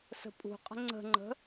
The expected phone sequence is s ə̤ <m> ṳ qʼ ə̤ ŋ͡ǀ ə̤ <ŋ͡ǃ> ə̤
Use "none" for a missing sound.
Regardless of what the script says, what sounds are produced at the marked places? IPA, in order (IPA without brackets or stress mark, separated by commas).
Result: pʼ, ŋ͡ǃ